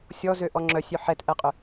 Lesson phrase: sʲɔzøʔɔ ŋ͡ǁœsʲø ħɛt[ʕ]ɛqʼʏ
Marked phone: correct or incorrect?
incorrect